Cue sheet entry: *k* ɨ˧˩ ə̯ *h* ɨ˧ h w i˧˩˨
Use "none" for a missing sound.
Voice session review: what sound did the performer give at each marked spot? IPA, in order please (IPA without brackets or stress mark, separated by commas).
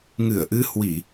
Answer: ŋ, ʔ